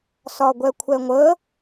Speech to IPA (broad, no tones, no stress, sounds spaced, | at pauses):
s ɒ ɡʷ ɛ kʷʰ ɛ ŋʷ ə